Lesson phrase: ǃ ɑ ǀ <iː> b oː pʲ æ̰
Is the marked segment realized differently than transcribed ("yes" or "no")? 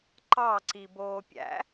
yes